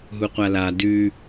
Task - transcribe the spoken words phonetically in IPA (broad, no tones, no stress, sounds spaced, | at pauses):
ɦ u qʷ a l a d ʉ